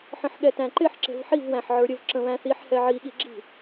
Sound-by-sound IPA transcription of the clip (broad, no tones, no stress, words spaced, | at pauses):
ħə̃ħɠɛtæ̃ǃɪħ ǁɛ̤vħiv wæ̃ħʕə˞ɾʲəv ǁə̃βæ̃θiħ hɛʕi ɠiɡ͡ǁi̤